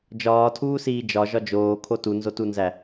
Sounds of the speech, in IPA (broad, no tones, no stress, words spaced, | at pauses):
d͡ʒɒːtʰuːsiː d͡ʒɒʒɒ d͡ʒoːkʰo tunzotunzæ